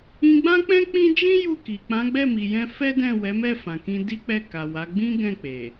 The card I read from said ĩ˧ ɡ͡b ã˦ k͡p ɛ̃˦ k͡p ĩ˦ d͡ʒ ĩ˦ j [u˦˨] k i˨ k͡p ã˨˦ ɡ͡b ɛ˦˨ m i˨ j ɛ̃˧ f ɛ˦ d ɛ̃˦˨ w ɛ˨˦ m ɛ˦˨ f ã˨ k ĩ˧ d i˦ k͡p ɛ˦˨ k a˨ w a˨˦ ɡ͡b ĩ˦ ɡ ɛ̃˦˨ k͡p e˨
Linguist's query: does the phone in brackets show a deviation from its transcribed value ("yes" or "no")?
no